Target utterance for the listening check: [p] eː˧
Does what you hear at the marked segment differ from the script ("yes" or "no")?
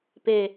no